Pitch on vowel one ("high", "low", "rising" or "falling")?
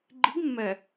rising